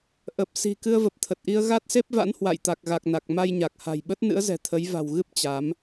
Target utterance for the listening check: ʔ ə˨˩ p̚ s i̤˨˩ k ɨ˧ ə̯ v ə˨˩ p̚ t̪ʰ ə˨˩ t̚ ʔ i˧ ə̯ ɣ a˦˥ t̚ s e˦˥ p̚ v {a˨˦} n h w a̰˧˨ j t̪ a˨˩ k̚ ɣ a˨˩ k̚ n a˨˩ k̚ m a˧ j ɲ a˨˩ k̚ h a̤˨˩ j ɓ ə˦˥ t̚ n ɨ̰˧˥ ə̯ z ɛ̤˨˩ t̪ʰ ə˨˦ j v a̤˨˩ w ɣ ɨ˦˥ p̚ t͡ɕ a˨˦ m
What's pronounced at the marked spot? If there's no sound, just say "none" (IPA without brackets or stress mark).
a̰˧˥